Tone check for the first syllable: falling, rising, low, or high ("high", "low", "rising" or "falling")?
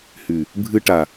low